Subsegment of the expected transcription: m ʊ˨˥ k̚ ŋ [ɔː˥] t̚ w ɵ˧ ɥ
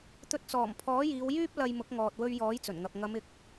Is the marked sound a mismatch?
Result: yes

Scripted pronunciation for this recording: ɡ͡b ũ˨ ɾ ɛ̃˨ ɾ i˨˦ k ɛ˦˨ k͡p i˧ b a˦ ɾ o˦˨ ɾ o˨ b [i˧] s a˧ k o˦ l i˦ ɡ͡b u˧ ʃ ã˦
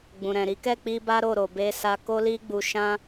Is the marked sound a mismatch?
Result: yes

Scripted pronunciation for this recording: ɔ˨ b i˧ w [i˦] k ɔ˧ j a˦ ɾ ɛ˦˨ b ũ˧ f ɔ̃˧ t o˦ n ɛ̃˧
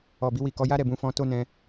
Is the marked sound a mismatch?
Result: yes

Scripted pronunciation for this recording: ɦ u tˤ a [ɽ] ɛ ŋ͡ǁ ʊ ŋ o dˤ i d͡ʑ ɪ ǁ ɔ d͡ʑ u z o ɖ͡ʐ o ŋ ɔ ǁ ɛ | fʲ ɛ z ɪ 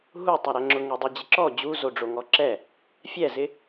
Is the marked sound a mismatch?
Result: yes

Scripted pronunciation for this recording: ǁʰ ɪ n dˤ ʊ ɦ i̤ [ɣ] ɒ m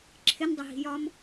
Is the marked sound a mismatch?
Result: yes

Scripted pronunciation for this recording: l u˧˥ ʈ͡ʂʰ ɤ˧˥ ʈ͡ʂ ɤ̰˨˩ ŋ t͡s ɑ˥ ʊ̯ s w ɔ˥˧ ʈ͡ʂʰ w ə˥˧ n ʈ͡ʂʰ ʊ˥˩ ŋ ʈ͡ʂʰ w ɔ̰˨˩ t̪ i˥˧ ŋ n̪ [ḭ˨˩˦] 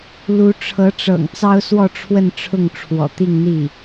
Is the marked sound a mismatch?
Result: yes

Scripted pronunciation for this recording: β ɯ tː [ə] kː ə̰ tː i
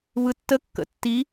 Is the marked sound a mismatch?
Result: no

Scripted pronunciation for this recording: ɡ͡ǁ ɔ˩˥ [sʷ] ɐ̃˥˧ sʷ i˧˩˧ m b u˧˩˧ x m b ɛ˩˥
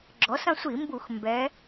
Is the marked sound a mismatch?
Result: yes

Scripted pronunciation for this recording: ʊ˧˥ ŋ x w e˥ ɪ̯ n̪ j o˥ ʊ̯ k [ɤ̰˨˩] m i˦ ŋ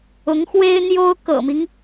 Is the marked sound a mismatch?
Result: no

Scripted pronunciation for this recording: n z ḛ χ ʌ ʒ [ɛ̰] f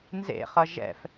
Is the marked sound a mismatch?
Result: no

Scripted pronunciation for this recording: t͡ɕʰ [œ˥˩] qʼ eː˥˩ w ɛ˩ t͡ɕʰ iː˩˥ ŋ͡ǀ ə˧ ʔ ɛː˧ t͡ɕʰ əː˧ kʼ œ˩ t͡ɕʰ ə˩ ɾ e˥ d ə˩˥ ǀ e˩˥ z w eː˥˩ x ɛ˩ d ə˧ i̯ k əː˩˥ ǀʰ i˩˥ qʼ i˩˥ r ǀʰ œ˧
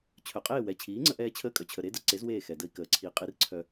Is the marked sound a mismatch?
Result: yes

